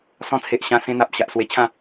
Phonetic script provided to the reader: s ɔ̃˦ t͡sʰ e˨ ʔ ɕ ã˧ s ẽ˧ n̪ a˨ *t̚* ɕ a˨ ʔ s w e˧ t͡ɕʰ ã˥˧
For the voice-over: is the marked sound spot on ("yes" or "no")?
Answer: no